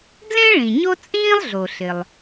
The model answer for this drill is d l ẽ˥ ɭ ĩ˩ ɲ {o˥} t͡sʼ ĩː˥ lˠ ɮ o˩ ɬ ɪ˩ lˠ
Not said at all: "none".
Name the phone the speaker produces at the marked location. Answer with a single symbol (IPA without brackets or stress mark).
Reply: o˥